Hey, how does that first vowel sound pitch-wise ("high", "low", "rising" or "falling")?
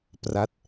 falling